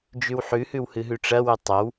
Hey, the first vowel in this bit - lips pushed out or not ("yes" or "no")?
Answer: yes